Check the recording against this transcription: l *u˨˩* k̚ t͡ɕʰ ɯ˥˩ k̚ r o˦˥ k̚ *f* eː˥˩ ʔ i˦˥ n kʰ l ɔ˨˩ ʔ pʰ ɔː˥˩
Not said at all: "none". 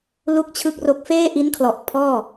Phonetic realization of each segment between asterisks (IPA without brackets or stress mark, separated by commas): u˥˩, f